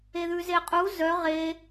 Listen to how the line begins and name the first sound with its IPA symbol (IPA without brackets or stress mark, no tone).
e